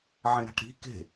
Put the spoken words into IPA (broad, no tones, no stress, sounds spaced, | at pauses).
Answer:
ʕ ẽ ɾ a̤ ʈ ɾ i̤ k e̤